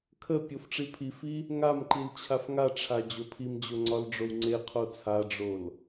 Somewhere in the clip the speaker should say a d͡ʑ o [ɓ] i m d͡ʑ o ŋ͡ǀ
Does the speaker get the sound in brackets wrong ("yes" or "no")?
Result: yes